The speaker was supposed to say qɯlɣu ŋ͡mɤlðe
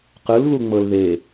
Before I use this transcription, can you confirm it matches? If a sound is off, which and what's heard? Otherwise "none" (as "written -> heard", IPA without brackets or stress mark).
none